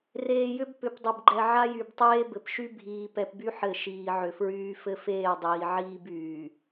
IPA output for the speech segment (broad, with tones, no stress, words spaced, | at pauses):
reː˨jʏ˦b pʏ˨pdˤɘ˨bɡ͡ǃɛ˨ ʕa˦jy˨btˤeː˦ bɘ˨pʃy˦ bʱiː˨pɛ˨pby˦ ħɘ˦˨ʃiː˨ʕʏ˨fɹyː˦ fɘ˦feː˦˨dˤiː˨ ʕiː˦byː˨